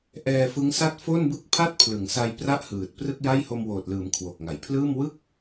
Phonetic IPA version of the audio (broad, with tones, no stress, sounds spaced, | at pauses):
ʔ ɛː˧ f ɯ˦˥ ŋ s a˥˩ t̚ f o˥˩ n b ɯ˥˩ k̚ pʰ a˥˩ t̚ pʰ l ɯ˩˦ ŋ s a˧ j p r a˥˩ ʔ h ɯː˨˩ t̚ p r ɯ˥˩ k̚ j a˥˩ j h o˧ m w oː˨˩ t̚ l ɯː˩˦ m kʰ w o˨˩ k̚ ŋ a˩˦ j pʰ l ɯː˥˩ m w ɯ˥˩ k̚